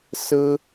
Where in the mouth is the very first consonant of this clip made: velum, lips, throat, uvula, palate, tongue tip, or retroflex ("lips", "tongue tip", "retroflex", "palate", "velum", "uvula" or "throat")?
tongue tip